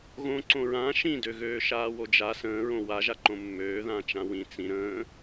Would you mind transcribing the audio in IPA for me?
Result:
ɣõǀõ ɹã ʃĩdøɣøː ʃaːwod͡ʒa sə̃ː ɹõwaʒaǃõ mːøː ðãt͡ʃãwĩ t͡sĩ ɾə̃ː

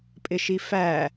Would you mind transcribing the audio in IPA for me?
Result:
pʼɪʃifæ

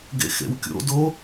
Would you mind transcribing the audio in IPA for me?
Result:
ɡḛxḛwkʲo̰do

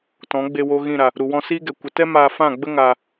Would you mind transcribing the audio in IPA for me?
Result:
tɔ̃˨˦ɡ͡be˧wo˧ ɣĩ˦˨ɾa˨ | ɾu˨wɔ̃˧siː˦ɡɛ˨ kʷə˨tɛ˦ maː˧fã˦˨ɡ͡bə˦ ŋaː˨

